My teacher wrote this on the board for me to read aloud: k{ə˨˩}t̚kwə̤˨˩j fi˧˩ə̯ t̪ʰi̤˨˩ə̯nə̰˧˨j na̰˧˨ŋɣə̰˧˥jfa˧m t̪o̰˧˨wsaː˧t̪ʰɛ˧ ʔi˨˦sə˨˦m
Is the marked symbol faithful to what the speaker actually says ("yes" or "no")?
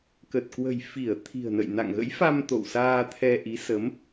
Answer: yes